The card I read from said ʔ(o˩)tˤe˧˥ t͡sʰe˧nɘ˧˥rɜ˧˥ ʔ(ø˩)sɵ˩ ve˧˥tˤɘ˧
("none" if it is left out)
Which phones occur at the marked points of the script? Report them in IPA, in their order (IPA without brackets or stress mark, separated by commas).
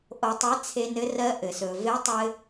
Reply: o˧, ɘ˩